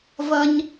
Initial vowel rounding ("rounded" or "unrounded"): unrounded